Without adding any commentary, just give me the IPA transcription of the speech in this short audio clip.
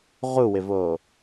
ʁ u w ɪ v oː

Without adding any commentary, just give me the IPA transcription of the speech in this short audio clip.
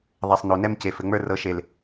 ðˤ ɛ˨ sˤ n o˨ n ɛ˦ m c e˨ f ɘ˨ ŋ͡m ə˞˦ r ɤ˨˦ ʃ e˨ l

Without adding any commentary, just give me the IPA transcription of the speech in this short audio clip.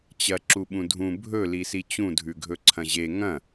t͡ɕ ɐ ǁ u ɓ ũ dʱ ũ bʱ ɵ l i s i t͡ɕ ũ dʱ ʉ ɡʱ ɵ ǀʰ ɐ̃ ʑ e ŋ ɐ̃

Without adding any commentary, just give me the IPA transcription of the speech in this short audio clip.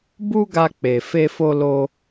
b u˦ ɡ a˧ k͡p e˨ f e˧ f o˧ l o˧

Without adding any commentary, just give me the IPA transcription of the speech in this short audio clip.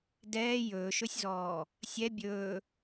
d ɛː j ɵː ʃ ɵ sʲ z ɔː | sʲ ɛ bʲ ɵː

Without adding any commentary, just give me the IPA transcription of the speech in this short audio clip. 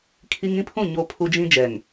kʰ i˦ ŋ ĩ˦ pʰ ũ˦˨ ɲ o˦ pʰ u˦ d͡ʒ ĩ˦ d͡ʒ ɛ˨ ŋ

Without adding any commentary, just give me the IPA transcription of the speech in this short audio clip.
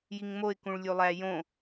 j i ŋ m o ɪ̯ k ũ ɭ lʲ u lˠ æ j õ

